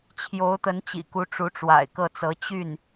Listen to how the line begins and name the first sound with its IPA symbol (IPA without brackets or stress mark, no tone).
t͡ɕʰ